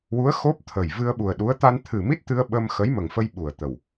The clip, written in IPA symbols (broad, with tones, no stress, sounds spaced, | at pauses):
w u˧˥ ə̯ x o˦˥ p̚ t̪ʰ ə˨˩ j v ɨ˧ ə̯ ɓ u˨˩ ə̯ ɗ u˧˥ ə̯ t̪ a˧ n t̪ʰ ɨ˨˩ m i˦˥ t̚ t̪ ɨ˧ ə̯ ɓ ə˧ m x ə˧˥ j m ə˨˩ ŋ f ə˧ j ɓ u˨˩ ə̯ t̪ ə˨˩ w